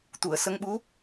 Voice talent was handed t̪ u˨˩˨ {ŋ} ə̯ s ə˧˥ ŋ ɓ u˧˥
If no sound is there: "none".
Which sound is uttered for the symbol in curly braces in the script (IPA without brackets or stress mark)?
none